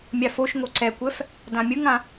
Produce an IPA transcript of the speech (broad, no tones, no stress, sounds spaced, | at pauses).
mʲ a f o ʃ ŋ o ǀ ɛ kʷ ɛ f | d ã mʲ ɯ ŋ ã